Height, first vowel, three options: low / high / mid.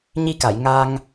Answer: high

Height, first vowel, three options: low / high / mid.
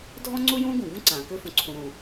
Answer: mid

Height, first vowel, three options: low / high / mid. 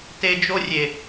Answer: mid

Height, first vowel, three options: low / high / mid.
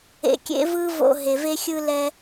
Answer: mid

